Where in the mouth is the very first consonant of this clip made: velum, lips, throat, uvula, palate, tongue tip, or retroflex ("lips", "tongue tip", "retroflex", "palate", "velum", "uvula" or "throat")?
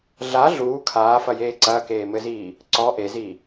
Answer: tongue tip